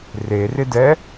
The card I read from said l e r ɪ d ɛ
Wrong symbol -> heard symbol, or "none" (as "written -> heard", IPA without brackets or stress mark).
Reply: l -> r